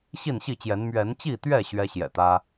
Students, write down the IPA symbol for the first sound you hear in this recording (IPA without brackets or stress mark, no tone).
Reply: ɕ